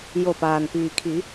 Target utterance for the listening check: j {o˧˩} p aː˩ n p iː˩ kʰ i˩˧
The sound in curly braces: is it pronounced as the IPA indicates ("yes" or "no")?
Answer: yes